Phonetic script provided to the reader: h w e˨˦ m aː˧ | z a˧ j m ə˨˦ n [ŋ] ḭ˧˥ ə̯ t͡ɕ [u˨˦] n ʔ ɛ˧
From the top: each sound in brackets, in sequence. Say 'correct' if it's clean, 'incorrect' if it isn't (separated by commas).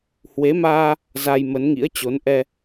correct, incorrect